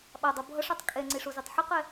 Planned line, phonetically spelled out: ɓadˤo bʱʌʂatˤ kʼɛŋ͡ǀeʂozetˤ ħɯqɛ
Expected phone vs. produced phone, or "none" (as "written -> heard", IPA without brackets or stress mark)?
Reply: none